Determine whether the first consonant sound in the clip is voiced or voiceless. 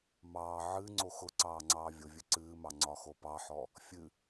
voiced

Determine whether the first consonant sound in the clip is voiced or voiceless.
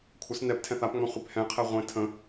voiceless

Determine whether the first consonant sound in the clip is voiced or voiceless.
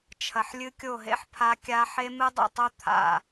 voiceless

